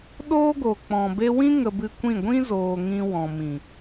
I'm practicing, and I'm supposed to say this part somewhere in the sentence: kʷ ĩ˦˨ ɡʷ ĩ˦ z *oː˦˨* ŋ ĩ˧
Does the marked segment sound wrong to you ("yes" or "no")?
yes